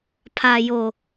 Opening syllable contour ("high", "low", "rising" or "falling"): low